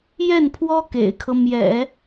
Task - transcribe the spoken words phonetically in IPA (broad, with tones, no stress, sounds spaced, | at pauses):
j ɛ˥˩ n pʰ w ɔ˥ k ḛ˨˩ ɪ̯ kʰ ɤ˦ m j ɛ̰˨˩˦